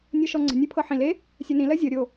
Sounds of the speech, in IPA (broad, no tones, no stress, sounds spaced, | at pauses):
nʲ ɤ ʃ ɔ ŋ͡ǀ ə̤ nʲ ɜ pʰ ɤ ħ ĩ l e | sʲ ɜ n ĩ l ɜ zʲ ɤ ɾʲ o